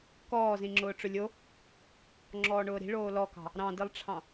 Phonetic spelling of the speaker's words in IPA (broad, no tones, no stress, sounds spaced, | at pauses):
k ɔː z ĩ ŋ͡ǁ ʊː ʈ͡ʂ ʊ lʲ o | ŋ͡ǁ ɔː ɳ ʊː ɾ i̤ ɭ oː l ɔ k ɑ̤ | ɾ ɑ̃ d i lˠ ʈ͡ʂʰ ɑ̃